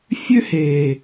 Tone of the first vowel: high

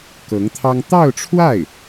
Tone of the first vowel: rising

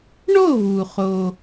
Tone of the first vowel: falling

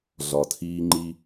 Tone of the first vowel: low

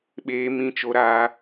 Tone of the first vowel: high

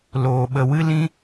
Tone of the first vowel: low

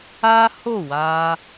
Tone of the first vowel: high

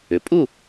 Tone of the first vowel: rising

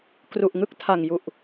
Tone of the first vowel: low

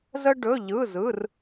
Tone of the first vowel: high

